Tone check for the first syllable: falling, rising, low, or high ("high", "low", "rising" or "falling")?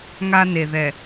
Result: high